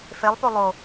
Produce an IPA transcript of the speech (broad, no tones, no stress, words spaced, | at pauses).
felˠpo lˠo